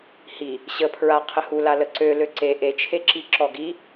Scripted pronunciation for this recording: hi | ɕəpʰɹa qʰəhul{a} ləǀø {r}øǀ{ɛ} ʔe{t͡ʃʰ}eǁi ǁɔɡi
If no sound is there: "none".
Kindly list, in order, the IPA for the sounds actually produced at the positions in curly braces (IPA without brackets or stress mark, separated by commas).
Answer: a, l, e, t͡ʃʰ